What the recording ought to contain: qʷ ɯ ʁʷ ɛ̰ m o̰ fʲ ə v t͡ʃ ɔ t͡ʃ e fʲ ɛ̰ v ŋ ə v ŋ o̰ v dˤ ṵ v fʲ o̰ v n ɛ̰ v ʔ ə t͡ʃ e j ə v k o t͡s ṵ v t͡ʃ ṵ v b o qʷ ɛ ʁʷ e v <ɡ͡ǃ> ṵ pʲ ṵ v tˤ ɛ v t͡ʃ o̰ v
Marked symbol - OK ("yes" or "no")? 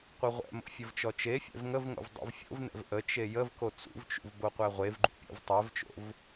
yes